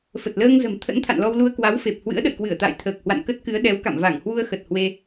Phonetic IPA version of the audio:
f ə˨˩ t̚ l əː˧ ŋ z ə̤˨˩ m t̪ʰ ə̰˧˥ n t̪ʰ a̰˧˨ n l ɔ˧ w l u˧ ə̯ k w a˨˦ w f e˨˩ p̚ h w ɨ̰˧˥ ə̯ ɗ ə̰˧˨ j k w ɨ˧˩ ə̯ t̪ a̰ː˧˨ j t̪ʰ əː˨˩ k̚ h w a̰˧˨ n k ə˦˥ t̚ k ɨ˨˦ ə̯ ɗ ɛ˨˦ w k a̰˧˨ m v a˧˩ ŋ h w u˧ ə̯ x ə˨˩ t̚ h w e˧

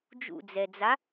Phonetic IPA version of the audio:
d͡ʒ ṵ d͡z ɛ d͡z a

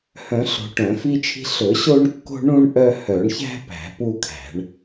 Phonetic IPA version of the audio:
h œ̃˨˩˦ ɬ o̤˨˩˦ ʈ œ̃˨˩˦ f i˦ t͡ʃʰ i̤˦ ɬ ɵ˨˩˦ ɕ o˦ ɳ kː o̤˦ ɳ ũ˦ ɳ ʔ œ˦ h œ˨˩˦ ɳ ç æ̤˦ p æ̤˨˩˦ p u˦ kʰ æ̤˨˩˦ ɳ

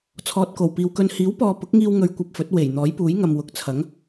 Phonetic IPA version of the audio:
t͡sʰ ɔː˨ t̚ k o˨˩ w p iː˨ w k ɵ˧ n h iː˨˥ w p ɔː˨ p ʊ˨˥ k̚ ŋ iː˧ w ŋ ɵ˧ ɥ kʷ ɐ˧ p̚ f ɵ˨˥ t̚ w e˨˩ j n̪ ɔː˨˥ j p uː˨˥ j ŋ ɐ˨ m w ʊ˨˥ k̚ t͡sʰ ɐ˨˥ ŋ

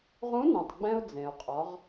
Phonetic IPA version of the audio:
ʁ ũ˧˥ n ɛ̃˩ tˤ ɡ͡b ɛ̃˧ ʊ̯ d͡z ẽ˩ ʊ̯ qʼ ɔ˩˧ ʁ

